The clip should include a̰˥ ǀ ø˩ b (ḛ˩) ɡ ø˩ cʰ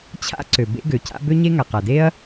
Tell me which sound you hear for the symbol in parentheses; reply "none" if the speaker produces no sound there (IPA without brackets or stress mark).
ḛ˥